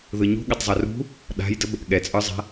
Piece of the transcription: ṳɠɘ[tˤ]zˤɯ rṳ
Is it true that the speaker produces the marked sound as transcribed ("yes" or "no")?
yes